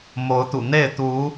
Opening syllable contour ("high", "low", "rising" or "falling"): rising